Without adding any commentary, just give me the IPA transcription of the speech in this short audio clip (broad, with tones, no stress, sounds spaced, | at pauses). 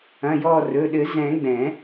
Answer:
ɐ̃˩˧˩ j ɔ˧˩ r ɵ˩˧˩ ɗ ɘ˨˩˦ z ɛ̃˨˩˦ ɡ͡b ɛ̃˨˩˦